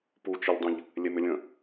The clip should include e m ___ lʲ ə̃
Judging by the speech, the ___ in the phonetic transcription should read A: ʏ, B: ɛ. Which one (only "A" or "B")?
A